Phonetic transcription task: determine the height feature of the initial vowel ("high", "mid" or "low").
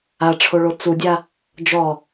low